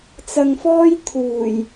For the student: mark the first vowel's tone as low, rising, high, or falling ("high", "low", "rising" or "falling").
low